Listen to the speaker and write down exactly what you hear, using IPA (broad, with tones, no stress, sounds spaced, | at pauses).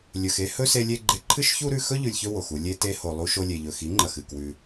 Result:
lʲ ɵ˨ x e˦ h ɵ˦ s e˧ lʲ e˧ ɡ͡ǃ e˧ ǃʰ ɨ˦ ʃ ç u˦ ɾ ʉ˧ x ɵ˦ ʎ ʉ˨ lʲ ç ɵ˧ w o˨ x u˧ lʲ e˧ t e˧ h o˨ lˠ u˧ ʃ o˧ lʲ e˨ ʎ ɵ˨ x i˨˦ ŋ͡ǃ ɐ˨ x ɨ˦˨ k w ʉ˧